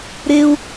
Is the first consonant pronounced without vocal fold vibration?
no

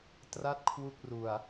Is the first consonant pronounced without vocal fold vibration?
yes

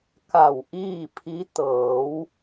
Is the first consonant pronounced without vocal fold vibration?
yes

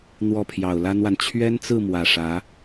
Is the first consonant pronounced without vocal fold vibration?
no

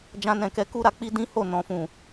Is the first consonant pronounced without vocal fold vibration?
no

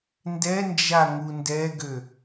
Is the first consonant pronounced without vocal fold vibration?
no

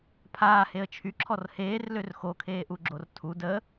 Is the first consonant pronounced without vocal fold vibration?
yes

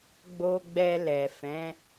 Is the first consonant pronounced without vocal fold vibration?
no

